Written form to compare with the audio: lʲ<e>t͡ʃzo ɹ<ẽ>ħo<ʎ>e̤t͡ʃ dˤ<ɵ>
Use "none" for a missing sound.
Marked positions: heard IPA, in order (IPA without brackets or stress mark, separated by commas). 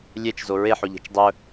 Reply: e, e, ʎ, ɵ